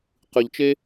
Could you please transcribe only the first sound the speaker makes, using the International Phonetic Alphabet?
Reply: q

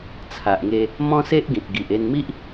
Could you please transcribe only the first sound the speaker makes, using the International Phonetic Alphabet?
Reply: t͡sʰ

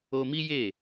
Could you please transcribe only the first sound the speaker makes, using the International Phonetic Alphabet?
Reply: o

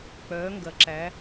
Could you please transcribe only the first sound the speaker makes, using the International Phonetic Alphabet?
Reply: k͡p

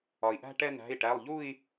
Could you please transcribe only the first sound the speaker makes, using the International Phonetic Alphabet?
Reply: ɒ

